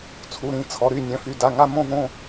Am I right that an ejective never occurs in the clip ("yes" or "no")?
yes